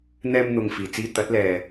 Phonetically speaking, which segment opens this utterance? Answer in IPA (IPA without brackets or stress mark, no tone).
n̪